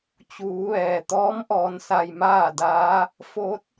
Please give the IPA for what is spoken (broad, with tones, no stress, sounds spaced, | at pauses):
t͡ɕ uː˩˧ ʋ ɛː˩ t̪ ɔː˧˥ m ʔ ɔː˧ n s a˧ j m aː˥˨ d aː˧˥ | f o˧˥ t̚